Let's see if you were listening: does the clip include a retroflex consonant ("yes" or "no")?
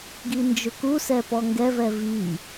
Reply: no